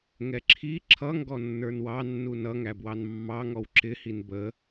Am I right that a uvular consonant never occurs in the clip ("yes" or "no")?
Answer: yes